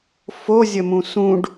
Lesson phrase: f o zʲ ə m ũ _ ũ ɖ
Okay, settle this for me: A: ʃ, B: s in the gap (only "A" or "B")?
B